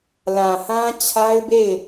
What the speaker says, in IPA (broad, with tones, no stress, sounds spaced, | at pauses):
l ã˨ h ã˦ t͡ɕʰ a˦ ɪ̯ b e˦˨ ɪ̯